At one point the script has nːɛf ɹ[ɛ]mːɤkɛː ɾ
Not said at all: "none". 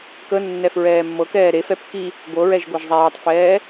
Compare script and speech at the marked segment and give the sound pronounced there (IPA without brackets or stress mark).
ɛː